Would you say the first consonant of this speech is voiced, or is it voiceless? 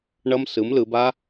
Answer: voiced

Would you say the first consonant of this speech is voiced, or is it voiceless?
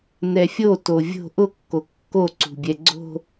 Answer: voiced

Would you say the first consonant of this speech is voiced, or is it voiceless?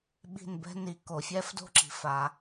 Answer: voiced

